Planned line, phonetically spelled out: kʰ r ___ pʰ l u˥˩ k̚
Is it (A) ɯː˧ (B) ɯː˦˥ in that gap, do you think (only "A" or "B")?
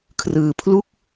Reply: A